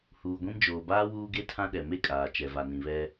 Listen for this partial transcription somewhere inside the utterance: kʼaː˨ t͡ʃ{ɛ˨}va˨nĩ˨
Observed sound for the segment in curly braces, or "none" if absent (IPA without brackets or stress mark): ɛ˨